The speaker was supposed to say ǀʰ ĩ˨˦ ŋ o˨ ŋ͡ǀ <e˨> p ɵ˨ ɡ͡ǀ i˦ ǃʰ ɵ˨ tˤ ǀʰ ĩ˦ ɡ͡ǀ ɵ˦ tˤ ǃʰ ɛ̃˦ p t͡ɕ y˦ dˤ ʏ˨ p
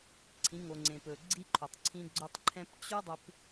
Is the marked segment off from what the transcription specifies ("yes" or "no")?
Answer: yes